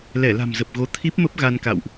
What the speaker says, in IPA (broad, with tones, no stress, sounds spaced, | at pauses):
l ɛ˧˩ l a̤˨˩ m z ə˨˩ p̚ ɣ o˨˦ t̪ʰ i˦˥ p̚ m ə˦˥ p̚ ɣ a˧ n k a̰˧˨ w ʔ